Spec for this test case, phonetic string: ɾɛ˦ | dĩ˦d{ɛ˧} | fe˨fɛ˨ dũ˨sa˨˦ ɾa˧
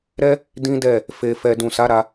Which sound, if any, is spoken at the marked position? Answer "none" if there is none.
ɛ˦˨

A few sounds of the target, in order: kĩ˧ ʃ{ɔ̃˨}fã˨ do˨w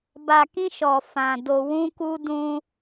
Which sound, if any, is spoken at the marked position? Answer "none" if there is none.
ɔ˨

